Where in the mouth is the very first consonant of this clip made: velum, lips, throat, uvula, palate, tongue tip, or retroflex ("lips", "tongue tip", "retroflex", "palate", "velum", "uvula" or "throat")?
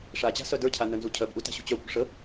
retroflex